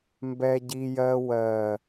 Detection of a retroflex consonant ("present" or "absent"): absent